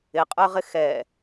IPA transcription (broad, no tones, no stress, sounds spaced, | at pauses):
ɪ qʼ ə˞ ʁ ɪ x ɛ